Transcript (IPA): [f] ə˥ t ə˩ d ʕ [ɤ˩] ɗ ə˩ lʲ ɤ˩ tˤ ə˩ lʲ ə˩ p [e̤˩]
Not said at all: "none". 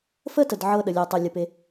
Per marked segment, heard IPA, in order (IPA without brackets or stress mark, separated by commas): f, ɤ˧, e˩